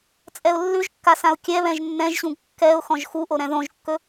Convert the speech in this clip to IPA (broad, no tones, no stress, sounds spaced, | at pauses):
t͡sʼ ɛ ʊ̯ lː ʉ ʒ kː a s ã ʊ̯ kʲ ɛ β ɛ̃ ʒ nː ɛ̃ ʒ ɕ ũ ɡ kː ɛ ʊ̯ x ɔ̃ ʒ x u ʔ o ɾ ɛ̃ ð õ ʒ kː ɵ